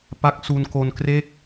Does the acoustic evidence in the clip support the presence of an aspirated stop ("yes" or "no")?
no